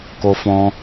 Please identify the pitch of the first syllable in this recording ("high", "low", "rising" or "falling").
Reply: high